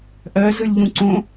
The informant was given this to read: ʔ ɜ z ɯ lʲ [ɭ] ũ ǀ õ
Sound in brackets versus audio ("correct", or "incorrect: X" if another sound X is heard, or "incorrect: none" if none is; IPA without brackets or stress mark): incorrect: ʎ